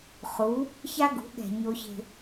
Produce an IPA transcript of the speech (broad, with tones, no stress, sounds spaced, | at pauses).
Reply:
χ u˨˦ | ç a˦ ɡ ṳ˨˦ ɠ ɛ̤˨ ɲ o˦ ç e̤˦